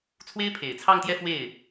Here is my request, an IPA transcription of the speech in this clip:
t͡sʰwe˥ɪ̯pʰe˨˩ɪ̯ t͡sʰɑ˥˧ŋt̪jɛ˥˧ fwe˥˩ɪ̯

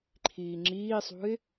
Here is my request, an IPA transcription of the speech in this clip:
ǃʰiːŋ͡ǁiːsˤṳɪ̯

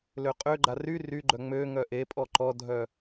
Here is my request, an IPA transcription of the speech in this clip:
løqʼøɡ͡ǃa ry ryɡ͡ǃœ ŋ͡møŋœ ʔepʼɔ ǃɔdʱœ

